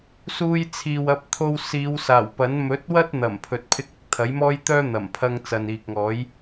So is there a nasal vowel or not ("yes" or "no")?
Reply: no